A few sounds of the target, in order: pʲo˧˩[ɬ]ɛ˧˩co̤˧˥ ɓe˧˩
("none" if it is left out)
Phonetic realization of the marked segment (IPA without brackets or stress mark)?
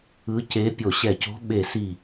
ɕ